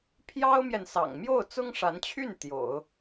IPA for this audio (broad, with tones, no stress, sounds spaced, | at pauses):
pʰ j ɑ˥ ʊ̯ m j ɛ˨ n s ɑ̰˨˩ ŋ m j o˥˩ ʊ̯ t͡s ʊ˥ ŋ ʂ a˧˥ n t͡ɕʰ y˥˩ n t̪ j o̰˨˩˦ ʊ̯